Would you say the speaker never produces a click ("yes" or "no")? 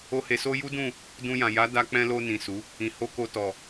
yes